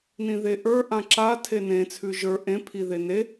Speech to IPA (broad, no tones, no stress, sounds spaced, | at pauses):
n ĩ ð e ʔ ə˞ ʔ ã ǁ a tʰ e n ẽ t͡sʰ ʉ ʒ ə˞ ʔ ẽ pʰ i ð e n e